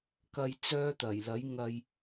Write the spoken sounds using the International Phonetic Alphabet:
kɐ˧j t͡sœː˥t̪ɐ˨˩j lɐ˨˥jŋɐ˧j

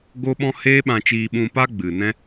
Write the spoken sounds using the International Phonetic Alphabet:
ɡo˦ɓɔ̃˦ heː˦ɓã˧t͡ʃiː˧ ɓũ˧pa˦ ɡ͡bɨ˨nɛ̃˦

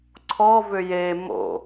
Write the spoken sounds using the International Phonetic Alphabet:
ǀʰɔ vʏje mo̰

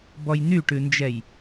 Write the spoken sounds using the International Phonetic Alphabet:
bɔjn̪yʈʉnd͡ʒɛj

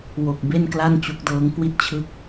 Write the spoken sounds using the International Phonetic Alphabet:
wo˨˩k̚ be˥˩nkla˥˩nt͡ɕu˦˥k̚dɤː˦˥ŋ kwi˦˥t̚t͡ɕʰɯ˦˥k̚

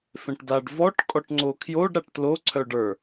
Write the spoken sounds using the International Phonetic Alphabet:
fẽʈdaɖ vɔʈ kʼɔʈŋ͡ǀokʰjoɖ ɾaʈtlo ǀʰœɖə˞

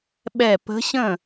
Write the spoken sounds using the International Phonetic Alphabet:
ɓɛ˧˩pə̤˧˥ɕə̃˥˩

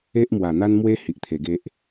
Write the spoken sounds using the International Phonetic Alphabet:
e˦ʔmwa˨˩n̪a˦nmwe˦ hi˨ʔt̪ʰe˨˩ɡe˦ʔ

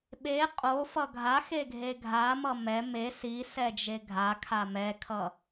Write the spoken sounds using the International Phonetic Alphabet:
ɓe qʼofʌ ɡʱaxe ɡʱeɡʱamʌ mɛ me si sɛd͡ʒeɡʱakʰa mɛkʰʌ

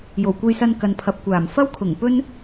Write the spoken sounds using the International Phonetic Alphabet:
jo˨˩wkʷe˧jsɐ˧n kɐ˨npʰɐ˨p̚kʷaː˨˩m fɐ˥wkʰʊ˨˩ŋ pɵ˥n

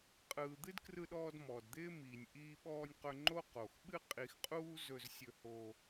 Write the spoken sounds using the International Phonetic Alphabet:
qʼɯː˩d̪ɨ˥d krɯ˧ɗɔː˧d mɔː˩dd̪ɪː˥ miː˩nʲ ʔiː˧ɓɔː˧nʲqɵ˧ ŋ͡ǃo˥ qo˩x ɓɨ˥qʼi˧xqʼuː˥ zɵ˧zsʲɵ˧ho˧

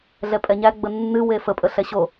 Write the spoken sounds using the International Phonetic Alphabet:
ɮɛpʼɛɲæ ɡ͡bənːɨ wefə pʼəɬɛɕo

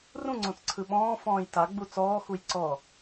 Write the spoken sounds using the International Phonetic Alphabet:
rũŋ͡ǀõt͡sǀʰɯ ɓɔ̃ːfɔ̃ːj taɡ͡bu t͡sɔːxuj ǀɔ

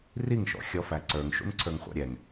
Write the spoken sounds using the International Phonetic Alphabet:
riŋʃɔ̰ xʲɔfæǀə˞ŋʃṵn ǀʰə˞ŋχʷɑ̰ɾʲɛŋ

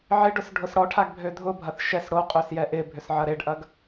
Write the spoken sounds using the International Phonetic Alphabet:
ʕɪɖʊs ɖʱʊsɽɔʈʰaɡbʱø dʱʊbʱɐθ ʃɛs ɽoqʼøsjɛ ʔɪbʱʏs ʕɐɾeɖʔɐɡ

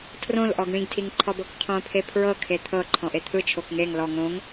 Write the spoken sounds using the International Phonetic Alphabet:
tʰrõlʔɔɡ ɳĩɡtʰiŋǃʰɔbɤk qʰõpʰe pʰɹɤ kʰet̪ʰɤ ǃʰɔ̃ʔet̪ʰɯ t͡ʃʰokŋeŋ lɔ ŋõŋ

